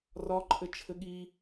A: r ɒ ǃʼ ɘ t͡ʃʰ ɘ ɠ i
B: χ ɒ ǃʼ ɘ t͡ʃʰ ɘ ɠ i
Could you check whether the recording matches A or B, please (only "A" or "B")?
A